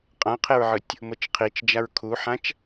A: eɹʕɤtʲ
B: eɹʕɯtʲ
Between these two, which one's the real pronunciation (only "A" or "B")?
B